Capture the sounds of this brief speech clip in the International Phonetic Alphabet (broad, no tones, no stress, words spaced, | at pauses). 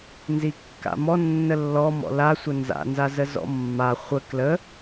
nzikːa̰mɔ nːəlːɔ mɔ̰la sʷənza̰ nzazəzɔ̰mːa χʷə klə